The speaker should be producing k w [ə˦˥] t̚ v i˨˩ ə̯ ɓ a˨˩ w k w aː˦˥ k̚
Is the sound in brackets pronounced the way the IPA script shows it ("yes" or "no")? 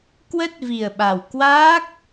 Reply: yes